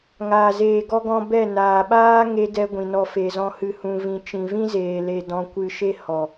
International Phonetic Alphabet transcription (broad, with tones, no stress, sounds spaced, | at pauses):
ŋ aː˨ z eː˨ ɡ ɔ˧ ɡ ɔ̃˧ b ɛ˦˨ n aː˨ ɓ aː˦ ŋ e˧ d ɛ˧ ɡʷ ĩ˨ n ɔ˧ f e˨ z ɔ̃˧ h ɨ˨ h ũ˨ v ĩ˨ t͡ʃ ĩ˨ v ĩ˦ z eː˨ l e˨ d ɔ̃˧ kʷ ɨ˧ ʃ e˦ h ɔ˨